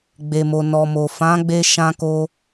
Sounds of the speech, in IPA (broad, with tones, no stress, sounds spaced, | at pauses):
ɡ͡b e˨ m o˨ n ɔ˨ m o˨ f ã˨˦ ɡ͡b e˧ ʃ ã˧ k o˧